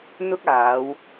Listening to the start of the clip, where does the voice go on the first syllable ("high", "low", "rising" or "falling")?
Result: high